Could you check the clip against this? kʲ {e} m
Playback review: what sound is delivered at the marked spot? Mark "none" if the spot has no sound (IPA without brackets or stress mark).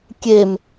e